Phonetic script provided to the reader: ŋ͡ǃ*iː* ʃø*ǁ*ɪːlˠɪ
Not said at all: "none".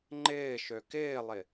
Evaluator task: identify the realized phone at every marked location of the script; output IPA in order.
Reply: ɪː, k

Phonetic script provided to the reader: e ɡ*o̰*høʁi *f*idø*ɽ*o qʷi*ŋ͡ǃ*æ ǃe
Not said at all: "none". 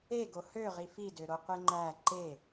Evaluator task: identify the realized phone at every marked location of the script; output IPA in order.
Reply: o, f, ɾ, ŋ͡ǃ

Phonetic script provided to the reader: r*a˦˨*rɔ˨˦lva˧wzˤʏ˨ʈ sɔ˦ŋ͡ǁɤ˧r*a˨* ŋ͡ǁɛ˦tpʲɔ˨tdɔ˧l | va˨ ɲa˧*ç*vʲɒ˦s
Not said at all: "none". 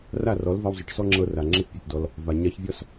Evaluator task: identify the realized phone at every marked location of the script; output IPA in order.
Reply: a˦˨, a˨, ç

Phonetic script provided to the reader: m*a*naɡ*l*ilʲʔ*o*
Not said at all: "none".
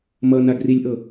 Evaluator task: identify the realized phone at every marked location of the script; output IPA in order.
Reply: ʌ, r, ɤ

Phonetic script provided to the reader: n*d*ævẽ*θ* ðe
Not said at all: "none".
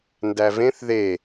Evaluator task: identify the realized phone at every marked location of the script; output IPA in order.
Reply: d, θ

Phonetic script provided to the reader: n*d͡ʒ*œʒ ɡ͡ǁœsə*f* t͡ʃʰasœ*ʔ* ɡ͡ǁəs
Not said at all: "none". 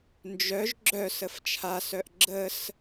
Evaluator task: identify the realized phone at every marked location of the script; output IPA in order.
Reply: d͡ʒ, f, ʔ

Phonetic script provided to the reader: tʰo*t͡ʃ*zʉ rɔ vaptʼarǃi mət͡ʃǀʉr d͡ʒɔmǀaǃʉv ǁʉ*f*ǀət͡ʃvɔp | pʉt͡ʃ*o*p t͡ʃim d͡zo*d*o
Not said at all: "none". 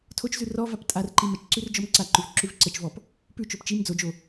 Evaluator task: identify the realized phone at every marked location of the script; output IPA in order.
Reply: t͡ʃ, v, o, d͡ʒ

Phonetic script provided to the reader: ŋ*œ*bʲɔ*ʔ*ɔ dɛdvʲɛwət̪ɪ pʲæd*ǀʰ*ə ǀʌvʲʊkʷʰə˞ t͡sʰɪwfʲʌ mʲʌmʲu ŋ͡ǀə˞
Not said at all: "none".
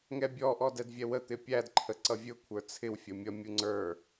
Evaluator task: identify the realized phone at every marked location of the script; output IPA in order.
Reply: ɛ, ʔ, ǃʰ

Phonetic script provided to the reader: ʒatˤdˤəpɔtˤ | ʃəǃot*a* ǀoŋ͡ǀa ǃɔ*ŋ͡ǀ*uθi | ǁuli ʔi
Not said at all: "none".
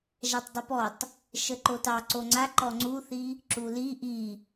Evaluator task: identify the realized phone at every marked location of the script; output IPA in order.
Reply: ɑ, ŋ͡ǀ

